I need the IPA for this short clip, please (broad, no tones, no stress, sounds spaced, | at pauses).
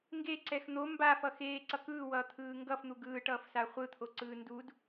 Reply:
ŋ ɡ e ǀ ɛ x n̪ o m b a f ʌ x eː ǀ ʌ k ɯː w ʌː t̪ʰ ɯː ŋ ɡ ʌ f n̪ u ɡ ɯː ʈ ʌː f s a χʷ ɯ t̪ʰ o ǀ ɯː n d u d